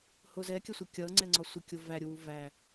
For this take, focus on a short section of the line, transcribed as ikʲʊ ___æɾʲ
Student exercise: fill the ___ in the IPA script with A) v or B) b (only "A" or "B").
A